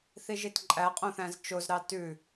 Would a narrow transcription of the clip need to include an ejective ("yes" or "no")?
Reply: yes